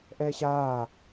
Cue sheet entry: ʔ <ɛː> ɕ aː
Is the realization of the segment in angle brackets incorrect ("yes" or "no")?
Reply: no